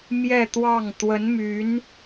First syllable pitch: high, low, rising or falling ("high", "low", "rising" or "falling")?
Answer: falling